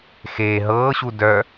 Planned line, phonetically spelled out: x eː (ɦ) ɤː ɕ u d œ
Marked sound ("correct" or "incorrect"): correct